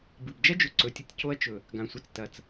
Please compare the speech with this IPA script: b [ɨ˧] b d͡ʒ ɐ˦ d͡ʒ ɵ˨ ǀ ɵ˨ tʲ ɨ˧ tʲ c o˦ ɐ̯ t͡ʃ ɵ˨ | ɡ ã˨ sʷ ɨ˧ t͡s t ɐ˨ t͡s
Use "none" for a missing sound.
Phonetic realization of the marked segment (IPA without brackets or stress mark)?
ɨ˨